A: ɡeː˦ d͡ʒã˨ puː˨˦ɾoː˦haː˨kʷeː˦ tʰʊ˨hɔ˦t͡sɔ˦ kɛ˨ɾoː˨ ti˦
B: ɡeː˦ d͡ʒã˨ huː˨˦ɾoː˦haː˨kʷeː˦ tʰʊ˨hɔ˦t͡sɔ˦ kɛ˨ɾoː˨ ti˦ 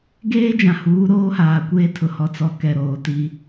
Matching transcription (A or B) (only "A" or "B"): B